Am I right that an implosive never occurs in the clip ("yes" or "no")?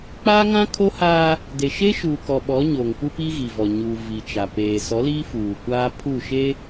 no